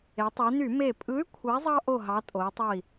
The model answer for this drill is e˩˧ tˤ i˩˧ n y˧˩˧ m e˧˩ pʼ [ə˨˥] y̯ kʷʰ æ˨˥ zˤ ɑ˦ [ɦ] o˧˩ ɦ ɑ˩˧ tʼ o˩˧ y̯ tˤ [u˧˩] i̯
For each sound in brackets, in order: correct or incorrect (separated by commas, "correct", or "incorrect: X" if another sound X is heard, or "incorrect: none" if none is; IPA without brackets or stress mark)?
incorrect: ɯ˨˥, incorrect: ʔ, incorrect: o˧˩